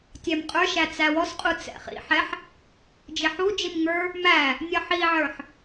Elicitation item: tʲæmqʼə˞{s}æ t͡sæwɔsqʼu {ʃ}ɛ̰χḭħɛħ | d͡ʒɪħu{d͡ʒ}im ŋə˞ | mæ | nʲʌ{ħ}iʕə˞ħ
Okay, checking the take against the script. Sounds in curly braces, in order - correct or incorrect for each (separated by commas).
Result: incorrect, incorrect, correct, correct